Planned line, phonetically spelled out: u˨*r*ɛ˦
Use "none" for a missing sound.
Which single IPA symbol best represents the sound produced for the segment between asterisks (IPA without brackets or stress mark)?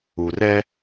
r